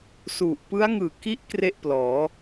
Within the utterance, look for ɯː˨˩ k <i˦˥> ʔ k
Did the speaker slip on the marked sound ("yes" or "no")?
no